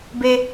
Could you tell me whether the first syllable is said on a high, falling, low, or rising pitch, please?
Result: high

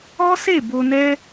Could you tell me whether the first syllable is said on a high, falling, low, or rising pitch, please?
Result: high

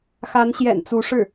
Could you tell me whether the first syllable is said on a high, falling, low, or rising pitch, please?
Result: rising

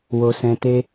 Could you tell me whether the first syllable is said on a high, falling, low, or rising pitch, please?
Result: low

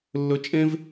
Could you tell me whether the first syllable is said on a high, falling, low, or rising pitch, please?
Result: high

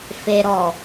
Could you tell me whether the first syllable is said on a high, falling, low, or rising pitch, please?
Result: low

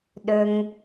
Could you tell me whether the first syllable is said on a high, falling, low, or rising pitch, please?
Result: low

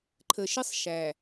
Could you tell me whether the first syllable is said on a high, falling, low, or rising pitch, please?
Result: low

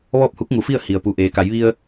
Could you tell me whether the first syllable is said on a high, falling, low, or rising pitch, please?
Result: falling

